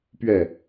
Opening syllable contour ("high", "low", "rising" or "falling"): falling